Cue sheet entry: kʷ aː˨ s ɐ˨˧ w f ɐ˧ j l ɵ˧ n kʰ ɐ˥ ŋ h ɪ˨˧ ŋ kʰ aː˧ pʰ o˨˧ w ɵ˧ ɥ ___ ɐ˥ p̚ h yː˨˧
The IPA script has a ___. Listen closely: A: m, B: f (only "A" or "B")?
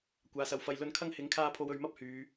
A